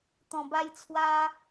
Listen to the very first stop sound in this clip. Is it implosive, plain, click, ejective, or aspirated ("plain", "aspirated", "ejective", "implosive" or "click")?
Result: plain